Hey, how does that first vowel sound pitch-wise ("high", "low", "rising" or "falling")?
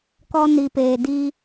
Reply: high